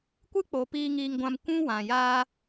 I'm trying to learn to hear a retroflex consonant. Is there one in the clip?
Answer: no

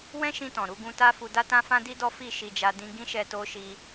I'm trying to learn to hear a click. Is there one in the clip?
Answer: no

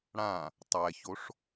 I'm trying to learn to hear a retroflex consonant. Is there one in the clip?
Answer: yes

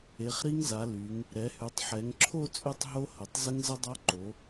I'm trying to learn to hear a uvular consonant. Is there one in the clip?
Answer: yes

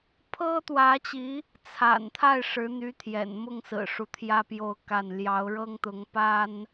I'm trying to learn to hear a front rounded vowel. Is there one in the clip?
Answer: yes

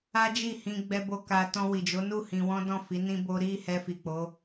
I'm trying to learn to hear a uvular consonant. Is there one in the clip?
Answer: no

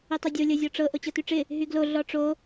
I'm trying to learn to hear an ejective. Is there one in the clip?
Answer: no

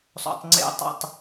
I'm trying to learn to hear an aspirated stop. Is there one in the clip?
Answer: no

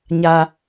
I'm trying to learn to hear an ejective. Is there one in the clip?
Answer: no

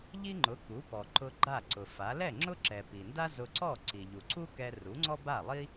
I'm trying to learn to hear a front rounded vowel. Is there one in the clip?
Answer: no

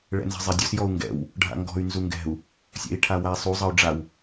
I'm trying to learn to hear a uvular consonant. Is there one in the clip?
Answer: no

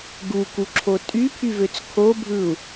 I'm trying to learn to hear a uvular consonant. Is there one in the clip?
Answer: no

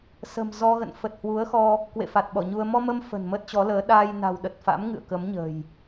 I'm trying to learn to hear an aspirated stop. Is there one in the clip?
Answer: no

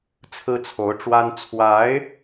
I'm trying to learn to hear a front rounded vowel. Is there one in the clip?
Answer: no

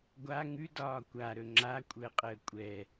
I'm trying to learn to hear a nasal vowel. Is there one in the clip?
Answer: no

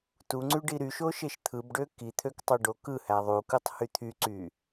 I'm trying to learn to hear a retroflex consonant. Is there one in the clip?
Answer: yes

